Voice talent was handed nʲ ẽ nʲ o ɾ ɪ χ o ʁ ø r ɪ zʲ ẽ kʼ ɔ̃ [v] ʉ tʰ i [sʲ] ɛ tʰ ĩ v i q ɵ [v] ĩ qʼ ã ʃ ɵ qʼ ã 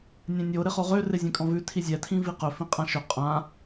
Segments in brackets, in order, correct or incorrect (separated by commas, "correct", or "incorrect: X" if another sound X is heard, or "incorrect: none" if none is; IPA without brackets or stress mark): correct, incorrect: zʲ, incorrect: f